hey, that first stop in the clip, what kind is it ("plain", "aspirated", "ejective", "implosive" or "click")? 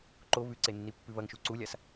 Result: click